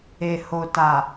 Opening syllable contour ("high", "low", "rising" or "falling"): low